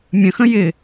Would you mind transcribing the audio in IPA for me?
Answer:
mʲə̃xə̃ jɪ

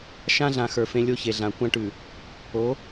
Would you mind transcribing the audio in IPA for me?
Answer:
ʃã˦ɮã˨ xə˞˨fẽ˦ lʲo˦çe˨ɮã˨ kʷã˦ʈʉ˨ | o˨˦

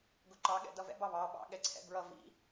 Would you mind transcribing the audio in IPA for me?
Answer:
ɡʊǃɑ ɠɛ̰dʌvɛ̰ bɑβɑ ɓɑ̰ ɠɛǀʰɛ̰bɹʌ vḭ

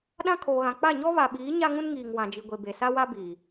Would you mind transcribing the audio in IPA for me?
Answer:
ɗã˦ kʰoː˨ɣã˨ k͡pa˦˨ɲɔ˦βa˨ɓiː˨˦ ɲa˦ŋũ˦nŋiː˨ŋ wã˨d͡ʒi˨ɡʷe˨ be˨sa˦wa˦ biː˨

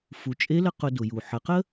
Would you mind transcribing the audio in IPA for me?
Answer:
fu˩˧ t͡ʃʼe˧˥lə˧ qʊ˧dʊ˩ju˩ ħə˩˧qə˥

